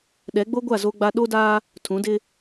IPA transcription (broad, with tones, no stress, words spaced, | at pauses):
ɗɛ˨˦ɡ͡bo˦ɡʷa˦˨ zo˦ɡ͡ba˦ ɗo˦daː˦ | tʰũ˨˦dɪ˦